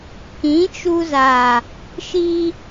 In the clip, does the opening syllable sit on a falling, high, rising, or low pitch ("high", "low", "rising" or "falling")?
rising